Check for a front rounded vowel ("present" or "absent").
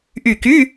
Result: present